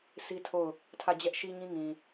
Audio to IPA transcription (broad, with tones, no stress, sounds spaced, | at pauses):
s i˦ tʰ o˦˨ ʊ̯ | tʰ ä˦˨ d͡ʑ ɛ˦ ʔ ʃ i˦ ɲ ĩ˦ ŋ ĩ˨